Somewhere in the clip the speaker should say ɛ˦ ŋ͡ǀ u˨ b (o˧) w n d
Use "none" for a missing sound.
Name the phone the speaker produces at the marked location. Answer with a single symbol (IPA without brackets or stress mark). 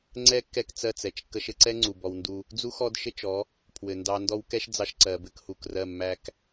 ɔ˧